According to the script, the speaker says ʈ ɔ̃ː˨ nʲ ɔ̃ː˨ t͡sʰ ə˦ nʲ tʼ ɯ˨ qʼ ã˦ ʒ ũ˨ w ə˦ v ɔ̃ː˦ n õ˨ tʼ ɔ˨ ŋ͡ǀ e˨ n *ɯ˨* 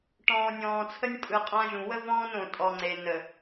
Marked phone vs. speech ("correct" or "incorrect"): incorrect